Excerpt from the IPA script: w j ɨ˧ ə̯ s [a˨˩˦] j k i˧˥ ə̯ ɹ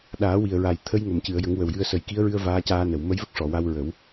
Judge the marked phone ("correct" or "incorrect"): incorrect